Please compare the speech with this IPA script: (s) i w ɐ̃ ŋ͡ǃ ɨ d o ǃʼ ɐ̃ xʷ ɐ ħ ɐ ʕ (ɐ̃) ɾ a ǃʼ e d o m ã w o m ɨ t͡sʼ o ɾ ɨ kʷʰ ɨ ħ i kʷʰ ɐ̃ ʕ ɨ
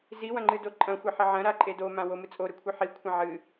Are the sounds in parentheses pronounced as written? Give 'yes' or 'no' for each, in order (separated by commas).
no, yes